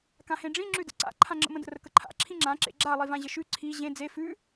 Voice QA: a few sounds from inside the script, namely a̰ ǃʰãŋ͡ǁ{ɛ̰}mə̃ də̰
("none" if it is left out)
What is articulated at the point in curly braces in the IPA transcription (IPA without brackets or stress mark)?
ə̰